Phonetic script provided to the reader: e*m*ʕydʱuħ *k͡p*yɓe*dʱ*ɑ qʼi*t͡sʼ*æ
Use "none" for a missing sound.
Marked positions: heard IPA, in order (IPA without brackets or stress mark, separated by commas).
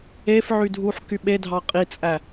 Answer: f, k, dʱ, t͡sʼ